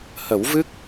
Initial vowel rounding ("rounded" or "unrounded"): unrounded